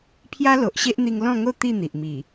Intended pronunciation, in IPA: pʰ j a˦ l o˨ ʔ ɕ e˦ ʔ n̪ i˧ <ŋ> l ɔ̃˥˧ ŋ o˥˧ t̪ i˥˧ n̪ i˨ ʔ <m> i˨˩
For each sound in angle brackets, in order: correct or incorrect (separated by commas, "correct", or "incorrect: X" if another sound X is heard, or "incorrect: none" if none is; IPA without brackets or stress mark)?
correct, correct